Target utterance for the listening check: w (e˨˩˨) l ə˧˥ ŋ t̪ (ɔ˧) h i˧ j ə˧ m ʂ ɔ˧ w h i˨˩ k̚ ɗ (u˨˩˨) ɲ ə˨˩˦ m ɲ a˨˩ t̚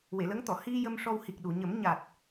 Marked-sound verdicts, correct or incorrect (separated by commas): correct, incorrect, correct